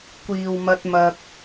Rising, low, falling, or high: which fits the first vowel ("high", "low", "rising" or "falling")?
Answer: low